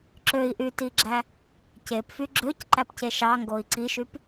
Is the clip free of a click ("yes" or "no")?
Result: no